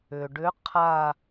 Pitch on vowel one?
low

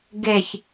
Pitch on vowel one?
low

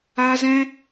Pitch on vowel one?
high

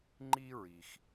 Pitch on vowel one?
high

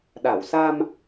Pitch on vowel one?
low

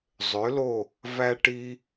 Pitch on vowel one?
rising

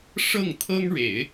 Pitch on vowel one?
falling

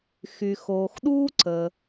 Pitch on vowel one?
low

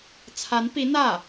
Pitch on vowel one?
rising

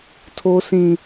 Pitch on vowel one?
high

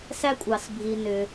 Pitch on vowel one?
high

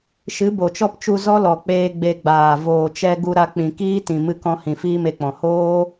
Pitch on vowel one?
rising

